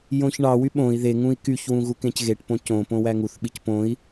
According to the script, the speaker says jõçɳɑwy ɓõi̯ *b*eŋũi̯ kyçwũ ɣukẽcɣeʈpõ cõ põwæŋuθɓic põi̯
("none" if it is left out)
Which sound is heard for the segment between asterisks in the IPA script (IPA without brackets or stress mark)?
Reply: ð